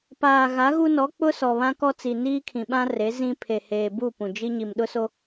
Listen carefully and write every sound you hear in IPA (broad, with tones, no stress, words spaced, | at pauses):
paː˨ ɣa˨˦ɣu˦nɔ˨˦ k͡pʊ˦sɔ˨βã˦ kɔ˦t͡si˨ niː˦kʰĩ˨ɓã˦ re˨˦ zĩ˦ pʰe˨heː˨bu˦˨ pũ˨d͡ʒi˦ ɲi˨mɗʊ˦so˦